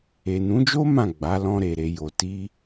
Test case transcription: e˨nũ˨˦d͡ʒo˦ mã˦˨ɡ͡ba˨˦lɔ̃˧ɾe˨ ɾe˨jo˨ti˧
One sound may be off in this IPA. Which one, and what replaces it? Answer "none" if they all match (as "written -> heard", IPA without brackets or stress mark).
none